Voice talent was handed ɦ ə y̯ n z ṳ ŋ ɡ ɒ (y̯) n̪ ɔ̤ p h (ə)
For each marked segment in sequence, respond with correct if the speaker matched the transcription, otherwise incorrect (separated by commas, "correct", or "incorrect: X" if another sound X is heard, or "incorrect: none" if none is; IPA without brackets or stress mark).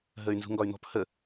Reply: correct, correct